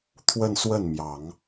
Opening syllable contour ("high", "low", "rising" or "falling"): falling